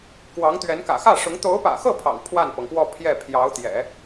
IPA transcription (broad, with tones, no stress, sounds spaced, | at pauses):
k w ɑ˧˥ ŋ t̪ ɥ ɛ˧˥ n k ä̰˨˩ x ä˥˩ ʂ ʊ˧˥ ŋ t̪ o˧˥ ʊ̯ p ä̰˨˩ x ɤ˥˩ pʰ ɑ̰˨˩ ŋ pʰ w a˥˩ n p ɤ˩ ŋ p w ɔ˥˧ pʰ j ɛ˥˩ pʰ j ɑ˧˥ ʊ̯ t̪ j ɛ̰˨˩˦